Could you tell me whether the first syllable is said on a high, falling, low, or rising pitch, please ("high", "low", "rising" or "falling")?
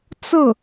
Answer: falling